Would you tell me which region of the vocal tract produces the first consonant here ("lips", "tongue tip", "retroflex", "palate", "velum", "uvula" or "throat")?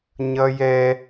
palate